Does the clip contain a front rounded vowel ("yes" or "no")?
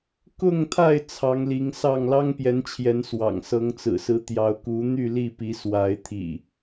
yes